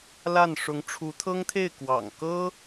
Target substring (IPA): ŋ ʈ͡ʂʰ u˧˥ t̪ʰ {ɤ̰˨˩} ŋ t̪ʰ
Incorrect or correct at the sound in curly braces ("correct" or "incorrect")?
incorrect